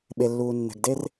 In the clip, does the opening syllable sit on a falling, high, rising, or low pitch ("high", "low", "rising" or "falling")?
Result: low